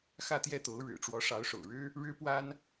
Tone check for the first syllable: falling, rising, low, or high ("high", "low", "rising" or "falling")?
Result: falling